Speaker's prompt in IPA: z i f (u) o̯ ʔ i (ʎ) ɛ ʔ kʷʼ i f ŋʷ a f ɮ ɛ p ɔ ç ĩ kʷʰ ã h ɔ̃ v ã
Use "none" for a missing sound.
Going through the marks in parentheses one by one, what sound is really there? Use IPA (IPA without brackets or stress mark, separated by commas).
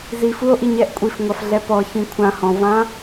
u, ɲ